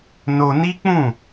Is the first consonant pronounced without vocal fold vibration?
no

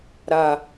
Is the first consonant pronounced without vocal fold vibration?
no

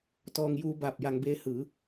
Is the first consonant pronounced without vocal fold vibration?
yes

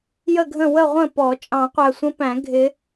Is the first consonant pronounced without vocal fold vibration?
no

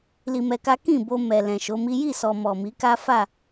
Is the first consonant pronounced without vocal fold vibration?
no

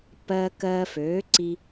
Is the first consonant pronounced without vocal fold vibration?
yes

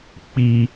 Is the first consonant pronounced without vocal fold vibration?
yes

